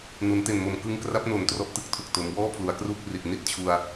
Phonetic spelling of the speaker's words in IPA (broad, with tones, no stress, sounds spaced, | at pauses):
n u˩˦ n t e˨˩ n m o˨˩ m k ɯ˧ ŋ k r a˦˥ p̚ n o˨˩ n t r ɔ˦˥ ʔ t ɯ˦˥ k̚ tʰ u˨˩ k̚ t o˩˦ m w ɔː˥˩ pʰ l u˩˦ a̯ k r uː˥˩ k̚ r i˨˩ t̚ n i˥˩ t̚ t͡ɕʰ u˧ a̯